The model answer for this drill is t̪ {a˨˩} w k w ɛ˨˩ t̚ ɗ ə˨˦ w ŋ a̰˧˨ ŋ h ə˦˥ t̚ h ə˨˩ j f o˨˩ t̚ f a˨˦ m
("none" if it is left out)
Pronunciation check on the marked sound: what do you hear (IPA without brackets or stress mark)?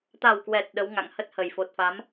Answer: a˨˩